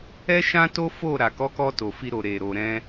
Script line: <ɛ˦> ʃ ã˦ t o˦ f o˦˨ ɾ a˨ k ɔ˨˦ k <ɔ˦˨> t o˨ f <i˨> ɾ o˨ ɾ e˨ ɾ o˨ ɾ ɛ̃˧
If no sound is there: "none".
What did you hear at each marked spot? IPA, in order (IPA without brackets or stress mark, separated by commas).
ɛ˦, ɔ˧, i˧